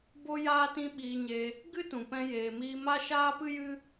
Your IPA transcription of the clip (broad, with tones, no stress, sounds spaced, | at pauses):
b o˦ j aː˦ t ĩ˦ ɓ iː˧ ɲ e˧ | ɡ ɨ˦ t ũ˨ p ɛ̃˧ j eː˨ m iː˧ m a˦ ʃ aː˦ p ɨ˦ j ɨ˦